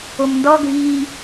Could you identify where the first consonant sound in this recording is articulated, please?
labial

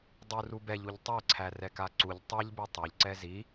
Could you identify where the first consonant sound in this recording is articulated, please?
alveolar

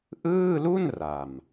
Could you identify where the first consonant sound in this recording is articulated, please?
glottal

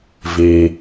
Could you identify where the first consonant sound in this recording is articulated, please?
labial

